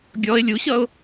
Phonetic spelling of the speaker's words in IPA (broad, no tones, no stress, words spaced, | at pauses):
ɡʲɔɪ̯ lʲuɕʌʊ̯